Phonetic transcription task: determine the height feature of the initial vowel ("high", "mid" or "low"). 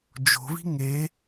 mid